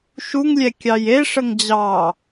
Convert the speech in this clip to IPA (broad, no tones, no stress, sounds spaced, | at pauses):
ʃ u ŋ lʲ ɛ kʲ ɑ j e ʂ ə ŋ d͡ʑ ɑ